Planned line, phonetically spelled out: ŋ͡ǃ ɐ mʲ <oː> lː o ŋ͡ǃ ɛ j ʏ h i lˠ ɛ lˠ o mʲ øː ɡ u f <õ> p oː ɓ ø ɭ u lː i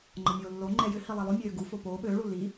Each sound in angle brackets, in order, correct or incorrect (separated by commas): correct, incorrect